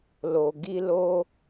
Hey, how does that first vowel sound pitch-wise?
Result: low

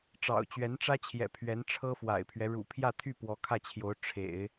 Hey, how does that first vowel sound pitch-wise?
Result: low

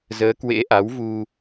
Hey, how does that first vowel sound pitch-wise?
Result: rising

